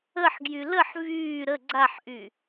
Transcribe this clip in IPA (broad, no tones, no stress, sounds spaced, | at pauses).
ə ħ ɡ j y l ə ħ v yː ɾ ə ɡ͡ǀ a ħ ʔ y